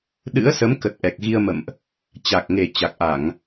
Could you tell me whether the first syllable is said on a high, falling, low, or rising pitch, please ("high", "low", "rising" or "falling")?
rising